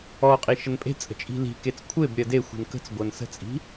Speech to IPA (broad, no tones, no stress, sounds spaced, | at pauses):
ɔ qʼ i ʃ ə n pʼ e̤ t͡sʼ ə̤ t͡ʃʼ i̤ l i̤ k e t͡s kʷʰ e b ɾʲ ɜ d e xʷ i̤ n k ə̤ t͡s ɡʷ ɜ n s ə̤ t͡sʼ i̤